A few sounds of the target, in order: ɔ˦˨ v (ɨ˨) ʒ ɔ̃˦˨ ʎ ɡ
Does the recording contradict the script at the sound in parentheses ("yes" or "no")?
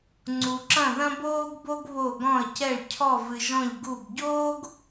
no